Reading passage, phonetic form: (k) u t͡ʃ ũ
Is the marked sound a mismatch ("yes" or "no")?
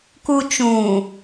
no